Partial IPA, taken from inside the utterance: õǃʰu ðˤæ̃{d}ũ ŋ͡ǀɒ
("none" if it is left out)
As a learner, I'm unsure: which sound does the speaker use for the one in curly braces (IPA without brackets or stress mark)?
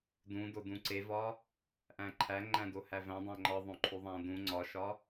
d